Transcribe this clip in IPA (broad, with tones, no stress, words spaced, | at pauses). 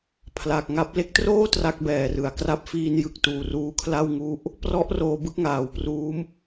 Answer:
pʰla˨˩k̚ ŋa˦˥p̚ le˦˥k̚troː˥˩ tra˥˩k̚bɛː˨˩ rɯ˩˦a̯kra˦˥p̚ fiː˧njɯ˨˩k̚tuː˨˩ ruː˧kʰla˥˩wŋu˦˥ʔ | prɔ˦˥ʔ roː˧bɯ˥˩k̚ŋaː˩˦wpruː˦˥m